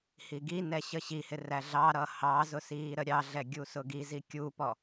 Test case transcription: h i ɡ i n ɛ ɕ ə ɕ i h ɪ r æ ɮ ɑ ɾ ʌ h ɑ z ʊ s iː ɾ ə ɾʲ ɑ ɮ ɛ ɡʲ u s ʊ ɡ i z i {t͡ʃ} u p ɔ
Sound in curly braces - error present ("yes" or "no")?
yes